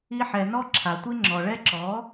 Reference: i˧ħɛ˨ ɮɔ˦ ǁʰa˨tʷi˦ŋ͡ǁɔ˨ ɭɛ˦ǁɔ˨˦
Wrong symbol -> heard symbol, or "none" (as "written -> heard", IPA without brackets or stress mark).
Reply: ɮ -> n